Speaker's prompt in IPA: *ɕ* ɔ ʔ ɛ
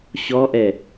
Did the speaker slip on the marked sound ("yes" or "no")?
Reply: no